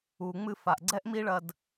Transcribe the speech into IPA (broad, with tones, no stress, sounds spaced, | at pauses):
u˨ ŋ͡m ɨ˧ f a˨ ʔ ɡ͡ǀ ɛ˦ ʔ m i˦ ɭ ɐ˧ d